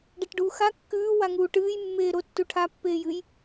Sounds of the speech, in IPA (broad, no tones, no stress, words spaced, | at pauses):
ɖɐʈɖuːxa kːʉː waŋuːʈɨːj mːeːɾo tːuʈʰa pːeːjɨj